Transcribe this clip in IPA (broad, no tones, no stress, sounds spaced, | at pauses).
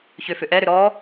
ç ʏ f ʏ ʔ ɛ ɾ ʏ ɾ ɔ